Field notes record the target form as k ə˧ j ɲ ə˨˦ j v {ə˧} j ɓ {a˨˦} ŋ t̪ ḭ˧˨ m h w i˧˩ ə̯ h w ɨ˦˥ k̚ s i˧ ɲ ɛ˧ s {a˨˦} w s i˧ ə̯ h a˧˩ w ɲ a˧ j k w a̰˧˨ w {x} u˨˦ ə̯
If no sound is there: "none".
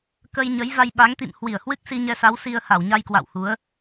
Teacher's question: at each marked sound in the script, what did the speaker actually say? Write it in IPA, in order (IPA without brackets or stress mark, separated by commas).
a˧, a˨˦, a˨˦, h